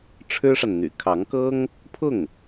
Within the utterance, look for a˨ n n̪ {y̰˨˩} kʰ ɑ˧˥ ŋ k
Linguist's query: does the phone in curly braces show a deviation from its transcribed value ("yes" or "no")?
no